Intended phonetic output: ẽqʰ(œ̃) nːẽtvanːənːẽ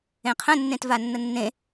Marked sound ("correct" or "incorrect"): incorrect